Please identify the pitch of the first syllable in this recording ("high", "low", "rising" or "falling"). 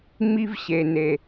high